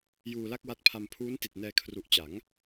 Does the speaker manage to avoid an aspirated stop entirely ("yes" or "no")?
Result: no